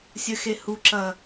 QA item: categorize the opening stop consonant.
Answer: click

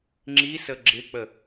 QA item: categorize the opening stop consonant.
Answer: click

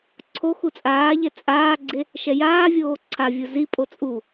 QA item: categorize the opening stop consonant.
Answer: click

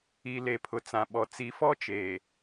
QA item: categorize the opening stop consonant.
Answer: aspirated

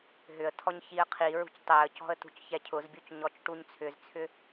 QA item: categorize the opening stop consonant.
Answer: aspirated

